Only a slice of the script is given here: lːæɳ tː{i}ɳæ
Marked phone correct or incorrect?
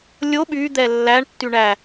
incorrect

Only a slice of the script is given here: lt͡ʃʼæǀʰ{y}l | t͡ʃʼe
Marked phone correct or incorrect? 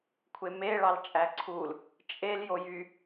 incorrect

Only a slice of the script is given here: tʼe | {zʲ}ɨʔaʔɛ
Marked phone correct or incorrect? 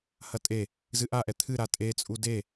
incorrect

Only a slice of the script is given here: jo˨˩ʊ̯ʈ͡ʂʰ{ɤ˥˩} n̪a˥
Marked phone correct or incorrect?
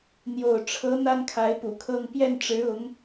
incorrect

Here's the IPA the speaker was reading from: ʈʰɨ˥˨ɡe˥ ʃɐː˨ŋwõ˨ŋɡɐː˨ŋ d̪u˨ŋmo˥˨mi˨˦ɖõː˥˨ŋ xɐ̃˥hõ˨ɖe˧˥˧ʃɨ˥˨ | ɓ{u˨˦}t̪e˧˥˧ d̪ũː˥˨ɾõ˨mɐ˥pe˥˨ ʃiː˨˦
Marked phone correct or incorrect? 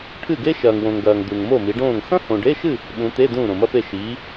incorrect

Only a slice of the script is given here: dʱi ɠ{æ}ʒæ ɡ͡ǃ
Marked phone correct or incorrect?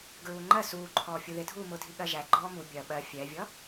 incorrect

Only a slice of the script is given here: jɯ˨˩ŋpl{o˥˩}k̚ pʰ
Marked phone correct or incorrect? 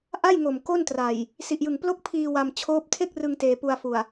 correct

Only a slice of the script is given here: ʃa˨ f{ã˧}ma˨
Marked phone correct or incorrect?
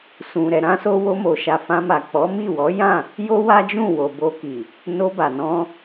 correct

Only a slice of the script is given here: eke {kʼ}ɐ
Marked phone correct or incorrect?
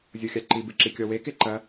incorrect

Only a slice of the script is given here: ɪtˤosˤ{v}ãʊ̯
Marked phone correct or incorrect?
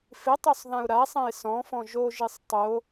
incorrect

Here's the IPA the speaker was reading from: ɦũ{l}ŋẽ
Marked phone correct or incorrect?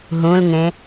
correct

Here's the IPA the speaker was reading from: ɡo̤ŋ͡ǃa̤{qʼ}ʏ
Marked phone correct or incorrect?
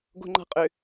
correct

